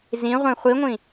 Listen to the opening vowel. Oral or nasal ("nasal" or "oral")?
nasal